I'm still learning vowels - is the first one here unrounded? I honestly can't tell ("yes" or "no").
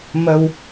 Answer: yes